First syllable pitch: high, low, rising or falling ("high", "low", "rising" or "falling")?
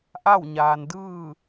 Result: falling